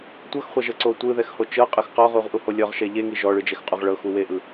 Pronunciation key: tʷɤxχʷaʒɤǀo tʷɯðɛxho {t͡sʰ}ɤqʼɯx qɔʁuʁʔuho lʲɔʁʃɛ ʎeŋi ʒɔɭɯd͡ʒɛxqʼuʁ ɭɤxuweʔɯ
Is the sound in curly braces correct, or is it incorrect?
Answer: incorrect